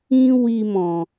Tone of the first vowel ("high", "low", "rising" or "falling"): high